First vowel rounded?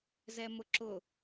no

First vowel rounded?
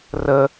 no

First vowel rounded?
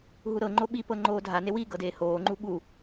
yes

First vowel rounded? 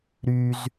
yes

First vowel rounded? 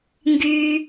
yes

